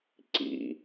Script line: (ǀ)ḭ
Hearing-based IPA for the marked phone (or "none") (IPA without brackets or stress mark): ǀ